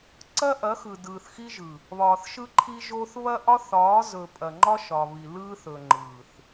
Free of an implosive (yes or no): yes